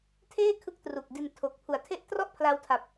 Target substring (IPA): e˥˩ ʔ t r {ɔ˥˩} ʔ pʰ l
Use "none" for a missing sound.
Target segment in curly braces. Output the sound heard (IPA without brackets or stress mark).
ɔ˥˩